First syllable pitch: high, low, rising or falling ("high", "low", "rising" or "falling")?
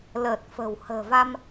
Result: low